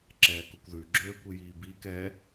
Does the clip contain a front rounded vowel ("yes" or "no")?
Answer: yes